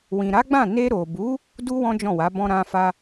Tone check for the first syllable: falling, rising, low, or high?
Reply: low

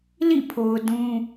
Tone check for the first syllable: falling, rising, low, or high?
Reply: falling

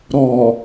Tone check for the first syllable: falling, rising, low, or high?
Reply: low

